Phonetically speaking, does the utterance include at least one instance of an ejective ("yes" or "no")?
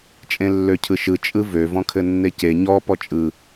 yes